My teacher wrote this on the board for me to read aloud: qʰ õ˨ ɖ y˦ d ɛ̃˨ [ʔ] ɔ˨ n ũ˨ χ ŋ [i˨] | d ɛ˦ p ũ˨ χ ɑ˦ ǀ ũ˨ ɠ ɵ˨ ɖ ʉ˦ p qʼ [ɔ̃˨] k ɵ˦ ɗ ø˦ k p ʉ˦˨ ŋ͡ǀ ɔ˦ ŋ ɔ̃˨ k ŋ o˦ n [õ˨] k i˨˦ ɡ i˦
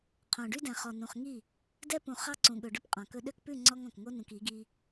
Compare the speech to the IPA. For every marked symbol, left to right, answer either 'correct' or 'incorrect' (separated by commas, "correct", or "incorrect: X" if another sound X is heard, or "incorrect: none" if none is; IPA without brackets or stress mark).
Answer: incorrect: χ, incorrect: i˦˨, correct, incorrect: ũ˨